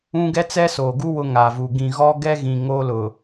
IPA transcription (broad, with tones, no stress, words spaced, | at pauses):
ũ˦ ɡɛ˦t͡sɛ˦soː˨ɡu˦ wʊ˦ŋaː˨vu˨ ɡĩ˨ɣɔ˦ ɡɛ˦ɣĩ˨ ŋoː˦lʊ˨